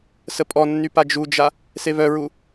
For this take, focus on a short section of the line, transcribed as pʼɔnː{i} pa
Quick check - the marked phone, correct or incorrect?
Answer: incorrect